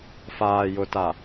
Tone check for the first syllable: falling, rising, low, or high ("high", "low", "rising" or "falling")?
low